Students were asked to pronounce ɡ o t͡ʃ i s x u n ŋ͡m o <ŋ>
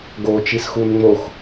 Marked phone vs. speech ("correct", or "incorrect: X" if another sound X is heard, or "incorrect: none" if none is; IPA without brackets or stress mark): incorrect: x